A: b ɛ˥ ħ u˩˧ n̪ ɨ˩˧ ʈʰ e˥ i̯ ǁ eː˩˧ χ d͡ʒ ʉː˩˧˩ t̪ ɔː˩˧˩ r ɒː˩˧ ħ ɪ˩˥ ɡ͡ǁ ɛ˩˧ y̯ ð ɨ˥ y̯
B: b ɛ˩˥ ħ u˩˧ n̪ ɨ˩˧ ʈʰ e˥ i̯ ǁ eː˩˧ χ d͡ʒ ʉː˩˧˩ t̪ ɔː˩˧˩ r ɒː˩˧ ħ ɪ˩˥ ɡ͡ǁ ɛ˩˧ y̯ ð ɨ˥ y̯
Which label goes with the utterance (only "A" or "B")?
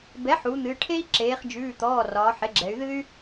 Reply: B